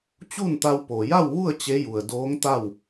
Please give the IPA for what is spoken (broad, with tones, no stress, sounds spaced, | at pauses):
t͡ɕ u˥˨ n t̪ a˧ w p o˩ j a˥˨ w ʋ u˥˨ ə̯ t͡ɕ e˧˥ j u˩ ə̯ d oː˧˥ ŋ t̪ a˥˨ w